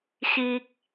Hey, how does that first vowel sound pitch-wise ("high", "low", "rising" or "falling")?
high